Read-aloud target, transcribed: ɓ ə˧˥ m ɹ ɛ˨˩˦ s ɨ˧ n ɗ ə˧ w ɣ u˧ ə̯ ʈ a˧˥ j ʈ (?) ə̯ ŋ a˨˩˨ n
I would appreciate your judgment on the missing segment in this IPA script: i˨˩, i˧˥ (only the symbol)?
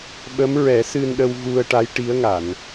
i˧˥